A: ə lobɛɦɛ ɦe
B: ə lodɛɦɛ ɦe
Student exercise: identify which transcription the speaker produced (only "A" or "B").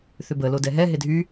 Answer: B